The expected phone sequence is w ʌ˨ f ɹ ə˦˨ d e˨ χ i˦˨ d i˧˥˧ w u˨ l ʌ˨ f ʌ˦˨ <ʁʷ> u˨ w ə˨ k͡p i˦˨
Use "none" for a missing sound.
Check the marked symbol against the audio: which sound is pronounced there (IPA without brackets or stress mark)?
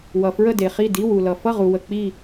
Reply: ʁ